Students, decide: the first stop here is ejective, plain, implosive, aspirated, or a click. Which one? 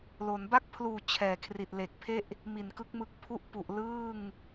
plain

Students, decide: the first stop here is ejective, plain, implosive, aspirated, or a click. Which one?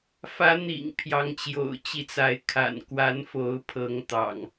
aspirated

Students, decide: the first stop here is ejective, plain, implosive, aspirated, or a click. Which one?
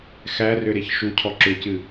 aspirated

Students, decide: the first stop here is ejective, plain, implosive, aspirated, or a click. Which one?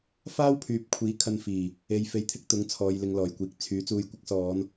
aspirated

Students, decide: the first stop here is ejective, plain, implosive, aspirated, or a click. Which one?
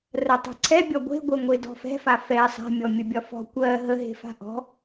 plain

